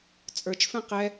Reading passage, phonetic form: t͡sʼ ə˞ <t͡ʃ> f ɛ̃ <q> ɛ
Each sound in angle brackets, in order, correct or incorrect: correct, correct

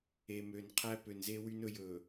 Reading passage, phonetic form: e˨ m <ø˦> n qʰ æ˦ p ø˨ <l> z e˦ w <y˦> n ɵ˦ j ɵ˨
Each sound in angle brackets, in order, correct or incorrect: incorrect, incorrect, correct

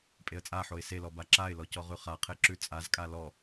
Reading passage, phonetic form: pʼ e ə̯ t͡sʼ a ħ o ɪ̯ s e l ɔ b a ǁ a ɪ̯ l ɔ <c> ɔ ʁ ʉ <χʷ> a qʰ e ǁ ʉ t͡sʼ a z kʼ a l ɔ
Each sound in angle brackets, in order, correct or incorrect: correct, incorrect

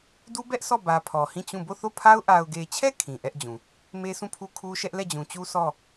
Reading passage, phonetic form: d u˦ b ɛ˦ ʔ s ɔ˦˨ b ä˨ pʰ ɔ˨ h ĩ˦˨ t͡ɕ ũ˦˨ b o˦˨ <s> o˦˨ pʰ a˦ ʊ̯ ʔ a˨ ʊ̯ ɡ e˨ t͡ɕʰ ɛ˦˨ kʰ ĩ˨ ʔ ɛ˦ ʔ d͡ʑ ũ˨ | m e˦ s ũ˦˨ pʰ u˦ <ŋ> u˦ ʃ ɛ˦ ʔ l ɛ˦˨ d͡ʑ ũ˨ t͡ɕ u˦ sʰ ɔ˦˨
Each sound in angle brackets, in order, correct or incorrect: incorrect, incorrect

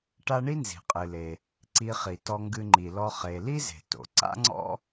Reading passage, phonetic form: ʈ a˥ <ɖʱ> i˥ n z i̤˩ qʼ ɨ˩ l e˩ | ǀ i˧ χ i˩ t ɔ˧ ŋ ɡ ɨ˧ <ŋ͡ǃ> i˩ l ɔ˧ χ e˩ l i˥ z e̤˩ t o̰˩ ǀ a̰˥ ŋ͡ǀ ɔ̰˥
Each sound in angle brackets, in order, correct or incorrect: incorrect, correct

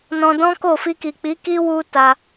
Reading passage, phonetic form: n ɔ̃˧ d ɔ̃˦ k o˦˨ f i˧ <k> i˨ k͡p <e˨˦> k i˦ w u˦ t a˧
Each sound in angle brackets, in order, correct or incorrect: correct, incorrect

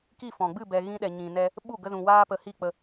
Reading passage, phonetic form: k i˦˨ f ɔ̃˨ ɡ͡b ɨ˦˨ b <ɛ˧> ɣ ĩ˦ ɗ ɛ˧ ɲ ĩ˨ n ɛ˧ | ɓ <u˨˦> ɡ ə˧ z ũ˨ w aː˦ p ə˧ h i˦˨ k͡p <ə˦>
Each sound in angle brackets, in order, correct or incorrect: correct, incorrect, incorrect

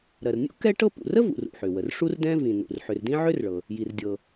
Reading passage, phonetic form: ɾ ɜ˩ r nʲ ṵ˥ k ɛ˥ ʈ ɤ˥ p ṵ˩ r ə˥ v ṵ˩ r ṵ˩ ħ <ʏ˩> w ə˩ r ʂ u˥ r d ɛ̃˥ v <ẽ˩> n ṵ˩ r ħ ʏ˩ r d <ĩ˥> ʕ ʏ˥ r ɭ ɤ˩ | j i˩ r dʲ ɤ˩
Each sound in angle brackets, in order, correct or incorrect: correct, incorrect, correct

